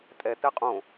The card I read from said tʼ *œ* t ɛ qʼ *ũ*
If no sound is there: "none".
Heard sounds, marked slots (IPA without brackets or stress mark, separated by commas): ɛ, õ